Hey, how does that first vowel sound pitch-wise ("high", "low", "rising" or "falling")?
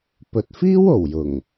low